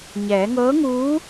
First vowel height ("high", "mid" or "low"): mid